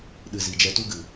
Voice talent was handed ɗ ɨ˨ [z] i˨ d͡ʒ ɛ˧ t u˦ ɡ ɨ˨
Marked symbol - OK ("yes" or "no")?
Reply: yes